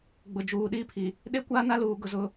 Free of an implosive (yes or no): no